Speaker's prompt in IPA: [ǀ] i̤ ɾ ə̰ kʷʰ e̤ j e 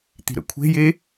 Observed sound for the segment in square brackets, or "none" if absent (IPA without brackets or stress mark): t̪